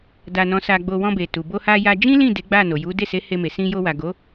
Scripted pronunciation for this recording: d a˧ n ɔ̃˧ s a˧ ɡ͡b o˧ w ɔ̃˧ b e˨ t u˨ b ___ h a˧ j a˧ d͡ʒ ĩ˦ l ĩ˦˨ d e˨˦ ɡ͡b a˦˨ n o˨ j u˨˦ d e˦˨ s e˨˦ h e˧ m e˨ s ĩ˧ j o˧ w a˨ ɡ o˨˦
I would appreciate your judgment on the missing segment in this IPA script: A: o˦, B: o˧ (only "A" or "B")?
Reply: B